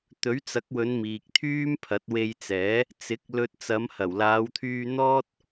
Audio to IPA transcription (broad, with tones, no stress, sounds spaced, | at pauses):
t̪ ɵ˨˥ ɥ t͡s ɐ˨˥ k̚ w ɵ˨˧ n m iː˨ k̚ t̪ʰ yː˥ m pʰ ɐ˨˥ t̚ w e˧ j t͡s ɛː˨˥ | t͡s ɪ˨˥ k̚ l ɵ˧ t̚ t͡s ɐ˨˧ m h ɐ˨˩ w l aː˨˧ w t̪ʰ yː˧ n̪ ɔː˥ t̚